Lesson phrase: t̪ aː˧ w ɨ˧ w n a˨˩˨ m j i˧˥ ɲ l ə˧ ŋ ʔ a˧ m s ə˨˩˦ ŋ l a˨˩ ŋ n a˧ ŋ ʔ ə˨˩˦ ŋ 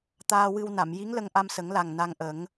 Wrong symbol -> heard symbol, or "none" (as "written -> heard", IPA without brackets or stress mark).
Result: ɲ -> ŋ